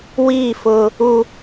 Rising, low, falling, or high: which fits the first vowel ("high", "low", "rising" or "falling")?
falling